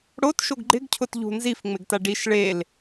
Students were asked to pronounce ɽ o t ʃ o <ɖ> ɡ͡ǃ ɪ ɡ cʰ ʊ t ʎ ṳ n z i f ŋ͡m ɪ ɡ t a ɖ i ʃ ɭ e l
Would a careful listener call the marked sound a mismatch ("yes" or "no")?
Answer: yes